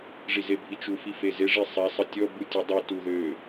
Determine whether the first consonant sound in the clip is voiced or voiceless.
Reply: voiced